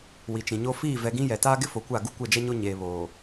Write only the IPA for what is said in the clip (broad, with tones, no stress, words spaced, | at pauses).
wi˨t͡ʃĩ˨ɲo˦ fiː˦˨vɛ˨ɡĩ˦ jɛ˨taː˦ɡɪ˦ fo˨kʷa˦˨ ɡu˦kʷɛ˦˨d͡ʒɛ˦ɲo˦ ɲeː˨βoː˨